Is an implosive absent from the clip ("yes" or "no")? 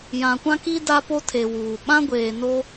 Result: no